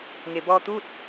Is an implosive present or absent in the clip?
absent